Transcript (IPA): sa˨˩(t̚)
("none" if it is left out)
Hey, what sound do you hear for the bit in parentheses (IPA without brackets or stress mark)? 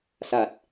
t̚